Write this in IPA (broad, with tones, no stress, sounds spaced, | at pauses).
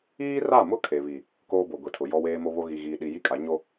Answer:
iː˦ r a˦˨ m ʊ˦ kʰ e˨ β i˨ | k oː˦ b o˨ ɡʷ i˨ tʰ ʊ˨ j ɔ˨ w eː˨ m o˨ β o˨ ɣ i˨ ɣ iː˨ ɗ i˨ j i˦ kʼ a˨˦ ɲ o˦